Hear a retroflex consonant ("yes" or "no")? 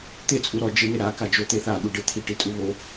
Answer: yes